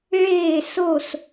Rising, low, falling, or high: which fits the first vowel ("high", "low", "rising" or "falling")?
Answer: falling